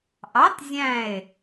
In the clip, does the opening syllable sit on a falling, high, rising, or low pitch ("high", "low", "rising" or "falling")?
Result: rising